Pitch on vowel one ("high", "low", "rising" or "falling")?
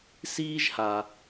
high